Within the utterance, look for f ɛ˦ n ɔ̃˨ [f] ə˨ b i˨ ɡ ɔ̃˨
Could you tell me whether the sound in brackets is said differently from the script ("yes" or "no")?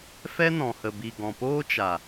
yes